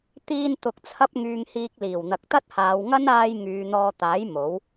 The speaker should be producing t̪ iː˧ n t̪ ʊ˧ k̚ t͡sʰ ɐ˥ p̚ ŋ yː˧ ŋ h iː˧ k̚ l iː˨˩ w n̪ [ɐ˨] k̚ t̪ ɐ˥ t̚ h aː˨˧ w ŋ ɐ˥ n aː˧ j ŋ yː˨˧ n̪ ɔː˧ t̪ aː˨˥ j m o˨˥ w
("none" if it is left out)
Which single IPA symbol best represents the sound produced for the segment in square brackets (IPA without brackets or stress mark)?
ɐ˨